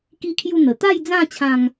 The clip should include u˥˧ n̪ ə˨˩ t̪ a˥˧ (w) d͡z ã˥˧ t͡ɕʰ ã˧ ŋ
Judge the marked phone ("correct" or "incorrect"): incorrect